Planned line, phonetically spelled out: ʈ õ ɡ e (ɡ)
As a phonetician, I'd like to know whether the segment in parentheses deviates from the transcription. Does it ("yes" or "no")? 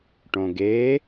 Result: yes